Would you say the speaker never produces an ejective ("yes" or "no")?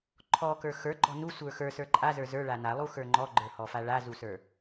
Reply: no